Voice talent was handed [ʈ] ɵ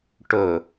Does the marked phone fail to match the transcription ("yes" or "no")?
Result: no